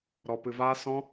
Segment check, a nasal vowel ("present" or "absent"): present